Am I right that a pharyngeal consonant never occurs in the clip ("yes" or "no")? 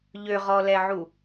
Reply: no